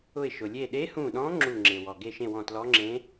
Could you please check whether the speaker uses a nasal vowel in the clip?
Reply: yes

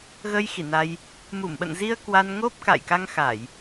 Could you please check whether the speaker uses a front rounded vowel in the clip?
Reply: no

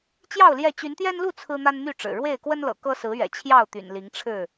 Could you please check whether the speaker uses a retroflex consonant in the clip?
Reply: yes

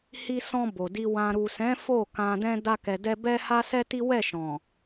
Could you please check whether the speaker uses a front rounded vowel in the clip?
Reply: no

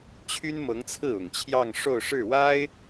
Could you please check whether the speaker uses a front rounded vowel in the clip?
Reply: yes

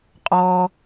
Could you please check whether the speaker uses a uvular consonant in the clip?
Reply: yes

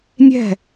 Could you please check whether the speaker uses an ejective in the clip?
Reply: no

